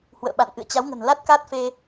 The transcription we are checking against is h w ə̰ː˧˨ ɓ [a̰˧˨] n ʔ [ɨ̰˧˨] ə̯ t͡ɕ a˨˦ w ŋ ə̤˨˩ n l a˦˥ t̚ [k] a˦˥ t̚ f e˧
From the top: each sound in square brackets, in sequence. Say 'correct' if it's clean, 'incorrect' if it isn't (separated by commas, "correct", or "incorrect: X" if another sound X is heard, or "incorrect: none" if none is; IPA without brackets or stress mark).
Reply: correct, correct, correct